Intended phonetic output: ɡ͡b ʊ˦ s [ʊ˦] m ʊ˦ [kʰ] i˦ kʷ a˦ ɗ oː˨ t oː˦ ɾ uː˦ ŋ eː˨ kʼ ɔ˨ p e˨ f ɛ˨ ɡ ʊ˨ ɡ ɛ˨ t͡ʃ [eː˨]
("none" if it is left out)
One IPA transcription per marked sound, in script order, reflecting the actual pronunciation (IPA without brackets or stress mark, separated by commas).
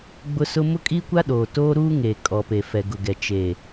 ʊ˦, kʼ, eː˨